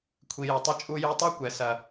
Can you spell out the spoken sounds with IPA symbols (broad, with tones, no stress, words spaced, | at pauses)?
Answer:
kʷʰi˩jɐ˩tˤɘ˧ t͡ʃʼu˧ju˧tˤo˥kʷɛ˩ sɐ˩